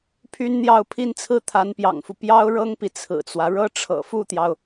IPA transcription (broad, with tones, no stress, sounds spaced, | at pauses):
pʰ y˥ n n̪ j ɑ˥˩ ʊ̯ pʰ i˥ n t͡sʰ ɹ̩˥˩ t̪ʰ a˧˥ n p j ɑ̰˨˩ ŋ f u˦ p j ɑ˥ ʊ̯ ɻ ɤ˥ ŋ p i˨ t͡sʰ ɹ̩˨˩ t͡s w ä˦ ɻ ɤ˥ ʈ͡ʂʰ ɤ̰˨˩ f u˥˩ t̪ j ɑ˩ ʊ̯